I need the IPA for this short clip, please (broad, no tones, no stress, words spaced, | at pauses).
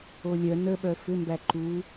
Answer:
olʲœ nəɓœ fʏmbæ ǃu